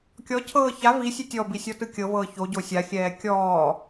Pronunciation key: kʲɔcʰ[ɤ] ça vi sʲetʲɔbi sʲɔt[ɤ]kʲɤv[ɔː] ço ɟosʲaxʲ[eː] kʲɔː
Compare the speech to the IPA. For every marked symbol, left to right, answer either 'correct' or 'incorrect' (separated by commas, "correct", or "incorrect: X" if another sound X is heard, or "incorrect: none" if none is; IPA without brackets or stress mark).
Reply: incorrect: ɤː, incorrect: ɯ, incorrect: ɤː, incorrect: ɛː